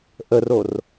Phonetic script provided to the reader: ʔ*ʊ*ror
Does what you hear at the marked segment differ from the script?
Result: yes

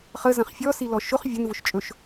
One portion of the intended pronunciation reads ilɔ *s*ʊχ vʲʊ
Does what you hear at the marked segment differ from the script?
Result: yes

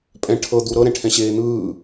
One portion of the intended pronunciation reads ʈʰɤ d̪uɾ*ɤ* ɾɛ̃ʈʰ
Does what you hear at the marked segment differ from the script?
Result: no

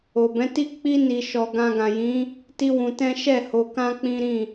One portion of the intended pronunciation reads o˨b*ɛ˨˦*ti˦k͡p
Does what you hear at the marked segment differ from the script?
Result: yes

